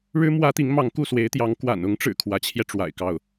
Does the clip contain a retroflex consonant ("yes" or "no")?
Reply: yes